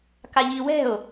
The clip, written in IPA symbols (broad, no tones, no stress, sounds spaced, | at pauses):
k a ʎ i w ɛ̤ o̯